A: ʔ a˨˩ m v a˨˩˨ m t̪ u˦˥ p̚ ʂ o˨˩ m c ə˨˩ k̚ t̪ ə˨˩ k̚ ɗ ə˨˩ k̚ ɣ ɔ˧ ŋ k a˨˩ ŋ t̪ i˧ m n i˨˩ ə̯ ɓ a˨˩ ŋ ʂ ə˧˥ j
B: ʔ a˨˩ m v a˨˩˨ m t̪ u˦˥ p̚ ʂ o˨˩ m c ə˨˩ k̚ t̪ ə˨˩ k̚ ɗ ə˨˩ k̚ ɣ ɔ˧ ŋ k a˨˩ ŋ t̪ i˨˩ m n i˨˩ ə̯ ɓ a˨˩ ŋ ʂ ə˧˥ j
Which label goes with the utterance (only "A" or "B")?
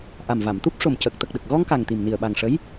B